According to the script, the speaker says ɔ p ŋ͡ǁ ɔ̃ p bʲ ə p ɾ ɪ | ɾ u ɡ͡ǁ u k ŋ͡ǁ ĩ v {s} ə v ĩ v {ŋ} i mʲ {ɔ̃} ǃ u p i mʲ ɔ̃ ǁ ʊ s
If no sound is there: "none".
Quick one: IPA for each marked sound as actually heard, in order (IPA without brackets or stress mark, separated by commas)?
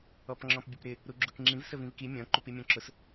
s, k, ɔ̃